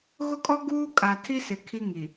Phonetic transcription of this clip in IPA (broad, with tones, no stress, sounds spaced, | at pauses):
ɣ ʊ˦ kʼ ɔ˦ ɡ uː˦ kʼ a˨ tʰ i˦ s ɪ˨ kʰ i˦ ŋ i˨